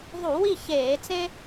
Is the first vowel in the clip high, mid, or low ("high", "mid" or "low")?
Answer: high